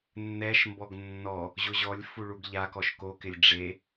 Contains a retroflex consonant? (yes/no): yes